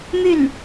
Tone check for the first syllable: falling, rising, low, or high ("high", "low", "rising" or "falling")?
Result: falling